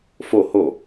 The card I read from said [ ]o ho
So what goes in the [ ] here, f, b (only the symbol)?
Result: f